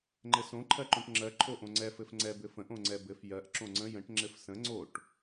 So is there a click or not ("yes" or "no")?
yes